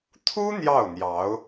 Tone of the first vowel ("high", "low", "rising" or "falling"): high